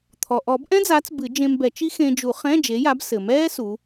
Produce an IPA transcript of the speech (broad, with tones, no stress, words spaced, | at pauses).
t̪ʰɔ˩ʔɔ˨˩˦bʔɛ̃˥d͡zaː˨˥t͡s bɨ˨˩˦d͡ʒẽ˧mbɛ˨˩˦t͡ʃi˥ xẽ˧d͡ʒu˨˩˦ χɛ̃ː˧˥˧d͡ʒe˨˥ja˨˥b sɘ˩mɛː˥ su˨˥